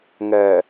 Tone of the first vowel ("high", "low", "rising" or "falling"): low